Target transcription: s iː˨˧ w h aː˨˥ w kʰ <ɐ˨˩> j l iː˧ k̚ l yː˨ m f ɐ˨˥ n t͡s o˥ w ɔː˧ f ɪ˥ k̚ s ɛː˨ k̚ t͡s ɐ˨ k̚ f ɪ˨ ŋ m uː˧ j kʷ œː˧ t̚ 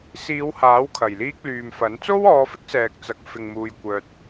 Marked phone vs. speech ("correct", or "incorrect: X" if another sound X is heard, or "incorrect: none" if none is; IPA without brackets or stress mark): correct